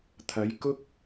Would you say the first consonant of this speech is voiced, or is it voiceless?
voiceless